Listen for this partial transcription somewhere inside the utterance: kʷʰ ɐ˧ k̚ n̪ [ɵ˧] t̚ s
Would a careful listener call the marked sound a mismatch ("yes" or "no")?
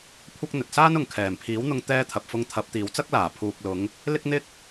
yes